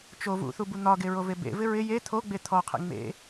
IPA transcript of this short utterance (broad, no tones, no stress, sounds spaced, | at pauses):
t͡ʃ o v ṵ θ u b u n̪ ɒ ɡ e ɹ o v e b ḛ v ɪ ɹ ɪ j e t̪ʰ o ɡ͡b e t̪ʰ ɔ qʰ ḛ ŋ͡m ḛ